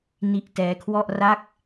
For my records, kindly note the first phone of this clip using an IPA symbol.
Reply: n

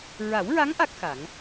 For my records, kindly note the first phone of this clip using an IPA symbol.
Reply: ɹ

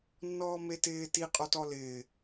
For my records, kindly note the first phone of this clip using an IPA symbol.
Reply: nː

